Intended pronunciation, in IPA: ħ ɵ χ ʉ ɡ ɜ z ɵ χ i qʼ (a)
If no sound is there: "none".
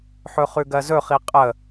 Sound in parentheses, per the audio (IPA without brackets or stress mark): ə